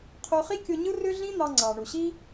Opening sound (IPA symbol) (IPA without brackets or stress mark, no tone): qʰ